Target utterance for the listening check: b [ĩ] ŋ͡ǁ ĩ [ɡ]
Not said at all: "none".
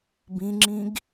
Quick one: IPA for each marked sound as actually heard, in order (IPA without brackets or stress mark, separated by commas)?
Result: ĩ, ɡ